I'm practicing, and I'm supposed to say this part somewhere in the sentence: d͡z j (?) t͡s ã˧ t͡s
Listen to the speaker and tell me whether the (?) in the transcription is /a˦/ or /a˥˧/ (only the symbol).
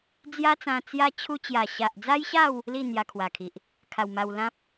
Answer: a˦